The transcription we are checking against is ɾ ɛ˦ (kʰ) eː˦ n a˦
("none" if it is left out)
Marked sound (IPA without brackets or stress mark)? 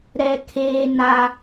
kʰ